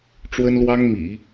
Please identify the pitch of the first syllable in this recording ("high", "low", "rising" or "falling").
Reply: high